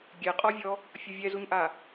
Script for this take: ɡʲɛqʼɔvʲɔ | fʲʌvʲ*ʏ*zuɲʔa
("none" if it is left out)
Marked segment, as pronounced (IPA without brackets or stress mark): ɛ